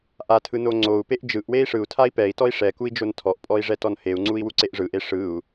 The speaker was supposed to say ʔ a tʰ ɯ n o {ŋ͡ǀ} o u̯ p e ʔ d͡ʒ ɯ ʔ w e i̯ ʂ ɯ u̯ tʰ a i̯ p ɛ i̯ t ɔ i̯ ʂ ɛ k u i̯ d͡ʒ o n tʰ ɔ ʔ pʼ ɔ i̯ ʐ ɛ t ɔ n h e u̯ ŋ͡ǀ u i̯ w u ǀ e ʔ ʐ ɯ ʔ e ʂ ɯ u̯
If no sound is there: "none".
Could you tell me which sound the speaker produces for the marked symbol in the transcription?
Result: ŋ͡ǀ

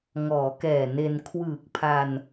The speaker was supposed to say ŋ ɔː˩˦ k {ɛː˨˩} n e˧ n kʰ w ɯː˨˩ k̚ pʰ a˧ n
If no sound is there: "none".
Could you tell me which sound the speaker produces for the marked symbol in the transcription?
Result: ɛː˨˩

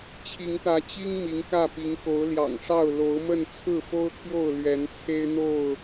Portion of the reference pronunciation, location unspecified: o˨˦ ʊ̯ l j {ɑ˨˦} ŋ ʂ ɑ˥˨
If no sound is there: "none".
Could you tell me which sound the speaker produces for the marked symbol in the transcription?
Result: ɑ̰˨˩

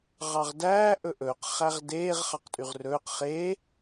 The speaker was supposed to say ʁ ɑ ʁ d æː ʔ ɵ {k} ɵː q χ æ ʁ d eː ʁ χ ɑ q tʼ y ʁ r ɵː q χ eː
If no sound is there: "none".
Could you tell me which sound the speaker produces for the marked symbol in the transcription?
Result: ʔ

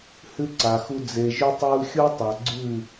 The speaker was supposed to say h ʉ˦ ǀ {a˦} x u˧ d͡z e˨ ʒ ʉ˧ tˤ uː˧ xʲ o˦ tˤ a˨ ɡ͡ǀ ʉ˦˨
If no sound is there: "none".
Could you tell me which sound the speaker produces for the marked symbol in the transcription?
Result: a˨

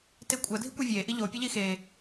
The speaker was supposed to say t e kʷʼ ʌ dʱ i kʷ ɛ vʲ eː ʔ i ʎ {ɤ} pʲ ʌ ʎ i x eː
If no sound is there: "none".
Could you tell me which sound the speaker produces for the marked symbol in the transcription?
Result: o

